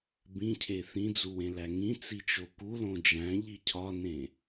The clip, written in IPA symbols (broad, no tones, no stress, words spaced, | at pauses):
bĩcʰe θĩd͡zuwẽlæ ŋĩt͡sit͡ʃo kulõ d͡ʒæ̃ʎi cʰɒnẽ